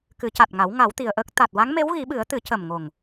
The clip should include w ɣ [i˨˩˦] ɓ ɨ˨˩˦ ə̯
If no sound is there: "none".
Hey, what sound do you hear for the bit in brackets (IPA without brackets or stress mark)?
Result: i˨˩˦